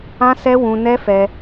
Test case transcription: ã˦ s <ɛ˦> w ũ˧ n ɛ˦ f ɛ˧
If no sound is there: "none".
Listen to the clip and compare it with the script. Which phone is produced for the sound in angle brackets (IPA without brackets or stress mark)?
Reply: ɛ˦